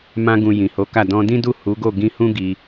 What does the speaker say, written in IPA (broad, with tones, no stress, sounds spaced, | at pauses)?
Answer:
m ã˧ ɡ ũ˨ j ĩ˨ h o˨˦ k a˦˨ d ɔ̃˧ d ĩ˦ d u˦˨ h u˨˦ ɡ o˦˨ ɡ ĩ˧ h ũ˦ ɡ i˧